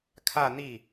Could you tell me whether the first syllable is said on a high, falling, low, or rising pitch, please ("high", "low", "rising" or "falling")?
falling